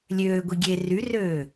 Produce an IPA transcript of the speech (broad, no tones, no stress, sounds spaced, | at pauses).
lʲ øː ɡʷ i ɡʲ e r y r øː